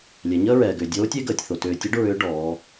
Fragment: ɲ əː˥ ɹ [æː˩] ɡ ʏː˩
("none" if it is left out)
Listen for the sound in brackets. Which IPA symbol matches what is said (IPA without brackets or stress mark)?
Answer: ɛː˩